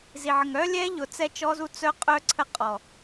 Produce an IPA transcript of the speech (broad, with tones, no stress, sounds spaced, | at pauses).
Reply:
z i˨ ʕ ə˨ ŋ œ˦ lʲ ɛ˦ ʎ ʊ˨ t͡s ɛ˦ t͡ʃ ɔ˦ z u˦ t͡s œ˦ qʼ œ˦ ǀʰ ə˦ qʼ ɔ˨